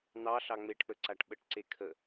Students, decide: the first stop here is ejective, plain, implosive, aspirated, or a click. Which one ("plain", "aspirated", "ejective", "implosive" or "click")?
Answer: plain